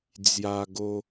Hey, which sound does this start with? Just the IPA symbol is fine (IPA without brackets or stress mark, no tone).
d͡z